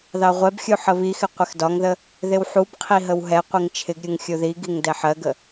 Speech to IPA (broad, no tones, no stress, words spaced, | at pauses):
ðɑʁʷɛbxʲu ħəβixɪ qʷɪxdɒŋðə | ðɪwħubqʰi ɦəwɦɛqʷiŋ t͡ʃʰɪɡɾʲuŋ xʲuðiɡiŋ dɛħɜɡə